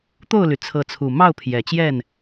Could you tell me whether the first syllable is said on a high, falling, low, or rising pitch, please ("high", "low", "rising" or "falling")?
falling